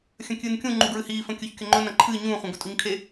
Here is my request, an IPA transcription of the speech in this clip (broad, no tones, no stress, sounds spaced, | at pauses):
xʲ ɐ̃ kʲ ɨː n kʲ ũ ŋ͡ǃ u ɡ ɹ ɨ h iː f ɐ̃ kʲ ɵ ç kʲ ɵ ŋ͡ǃ ɵ n ɐ̃ ǃʰ ɨː ɲ ũː χʷ ɐ̃ ɡ ɵ tʼ u ɲ kʰ e